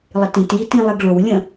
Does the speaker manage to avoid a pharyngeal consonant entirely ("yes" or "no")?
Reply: yes